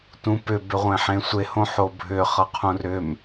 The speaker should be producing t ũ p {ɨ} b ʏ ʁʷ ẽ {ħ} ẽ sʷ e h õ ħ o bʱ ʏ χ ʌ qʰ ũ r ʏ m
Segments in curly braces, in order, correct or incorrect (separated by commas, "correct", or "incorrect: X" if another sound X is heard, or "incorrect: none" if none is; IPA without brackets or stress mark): incorrect: ʏ, correct